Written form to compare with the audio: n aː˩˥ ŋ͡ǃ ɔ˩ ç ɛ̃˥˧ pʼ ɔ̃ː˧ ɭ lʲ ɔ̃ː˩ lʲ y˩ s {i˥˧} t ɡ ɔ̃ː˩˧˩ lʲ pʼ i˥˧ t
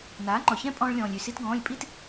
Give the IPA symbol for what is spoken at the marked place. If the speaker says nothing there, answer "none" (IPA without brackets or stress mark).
i˧